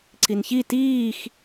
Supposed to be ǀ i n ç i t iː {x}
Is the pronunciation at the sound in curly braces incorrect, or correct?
correct